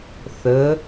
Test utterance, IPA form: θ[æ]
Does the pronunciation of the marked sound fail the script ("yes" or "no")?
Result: yes